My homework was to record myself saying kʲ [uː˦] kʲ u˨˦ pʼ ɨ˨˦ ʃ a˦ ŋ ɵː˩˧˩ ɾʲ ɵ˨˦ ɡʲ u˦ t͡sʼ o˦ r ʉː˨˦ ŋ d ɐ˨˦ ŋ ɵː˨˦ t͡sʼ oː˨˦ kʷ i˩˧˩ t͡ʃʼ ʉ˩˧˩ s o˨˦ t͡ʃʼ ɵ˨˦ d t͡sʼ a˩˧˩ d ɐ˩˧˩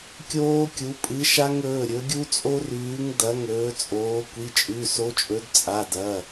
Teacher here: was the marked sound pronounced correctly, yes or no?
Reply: no